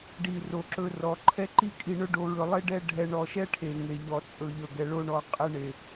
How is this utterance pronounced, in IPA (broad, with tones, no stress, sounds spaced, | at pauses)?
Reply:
ɖ i˦˨ r o˦˨ ǁ ɵ˦ r ɔ˨ ǃʰ ɛ˦ ǃ i˦ kʼ i˧ ɳ ɵ˦ ɖ o˧ ɹ ɵ˧ lˠ e˦ ɖ ɛ˦ ɖʱ ɛ˧ ɳ ɔ˧ ʃ ɛ˦ ʈʰ e˨ ŋ e˨ ʎ ɔ˨ t͡sʼ ɵ˨ ʎ ɵ˨ ɡ ɛ˨ ɭ o˧ ɳ ɔ˨ qʼ ɛ˧ ɳ e˨